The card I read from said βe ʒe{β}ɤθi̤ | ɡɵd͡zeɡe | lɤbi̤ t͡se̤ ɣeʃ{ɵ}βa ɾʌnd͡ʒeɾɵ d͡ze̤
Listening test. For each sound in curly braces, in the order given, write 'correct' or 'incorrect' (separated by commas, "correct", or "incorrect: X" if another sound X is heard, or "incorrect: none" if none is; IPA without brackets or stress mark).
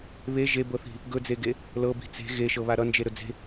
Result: incorrect: b, incorrect: ɤ